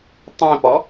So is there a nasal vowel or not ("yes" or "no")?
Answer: yes